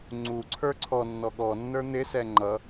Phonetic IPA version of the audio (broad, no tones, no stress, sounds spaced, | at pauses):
ŋ͡ǀ u ǀʰ ə˞ ǀʰ ɔ nː ɔ ɠ ɔ nː ə˞ n̪ ɪ s ɛ ŋ͡ǃ ʌ